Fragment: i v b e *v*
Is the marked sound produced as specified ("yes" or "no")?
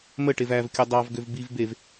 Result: yes